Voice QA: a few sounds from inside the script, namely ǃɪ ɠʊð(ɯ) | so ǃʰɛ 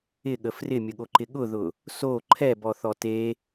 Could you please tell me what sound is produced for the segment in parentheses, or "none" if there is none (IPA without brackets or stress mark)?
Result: ʊ